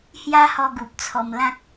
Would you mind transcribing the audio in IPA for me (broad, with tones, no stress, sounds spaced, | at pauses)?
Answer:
h j a˦ h ɔ˧ ɡ u˨ p̚ t͡sʰ ɔ˧ m l ã˦ k̚